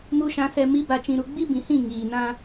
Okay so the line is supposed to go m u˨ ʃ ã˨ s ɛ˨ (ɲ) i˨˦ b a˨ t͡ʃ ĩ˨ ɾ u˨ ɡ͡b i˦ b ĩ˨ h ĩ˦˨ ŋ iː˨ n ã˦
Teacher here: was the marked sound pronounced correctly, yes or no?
no